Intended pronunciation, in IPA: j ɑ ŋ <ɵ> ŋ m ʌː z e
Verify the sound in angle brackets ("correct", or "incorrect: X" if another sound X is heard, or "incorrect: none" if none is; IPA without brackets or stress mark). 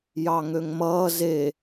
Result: incorrect: ø